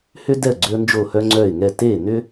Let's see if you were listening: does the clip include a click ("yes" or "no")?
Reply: yes